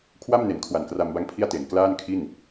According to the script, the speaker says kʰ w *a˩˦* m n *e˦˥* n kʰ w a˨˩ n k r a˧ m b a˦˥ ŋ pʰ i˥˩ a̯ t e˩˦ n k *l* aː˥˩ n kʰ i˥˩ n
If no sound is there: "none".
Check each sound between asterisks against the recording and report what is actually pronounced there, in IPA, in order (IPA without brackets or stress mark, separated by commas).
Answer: a˥˩, e˩˦, l